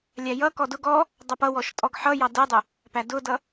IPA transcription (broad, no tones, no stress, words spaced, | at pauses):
lʲæjʌkɔ dʊ ɡɔ | dˤʌpʌwɔʃ tʼɔɡħʌjɑ dədˤʊ | pædʊdʌ